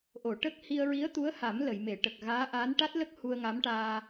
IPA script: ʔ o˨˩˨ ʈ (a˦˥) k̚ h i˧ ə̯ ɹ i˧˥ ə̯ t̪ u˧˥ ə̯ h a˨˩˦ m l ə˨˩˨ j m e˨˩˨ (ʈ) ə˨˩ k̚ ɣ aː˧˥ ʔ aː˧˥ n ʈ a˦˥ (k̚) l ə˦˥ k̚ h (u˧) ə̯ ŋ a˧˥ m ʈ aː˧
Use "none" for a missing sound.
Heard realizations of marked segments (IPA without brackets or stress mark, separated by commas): ə˦˥, ʈ, t̚, u˧